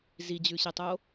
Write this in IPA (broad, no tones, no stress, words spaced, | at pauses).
zid͡ʑʉɕetˤo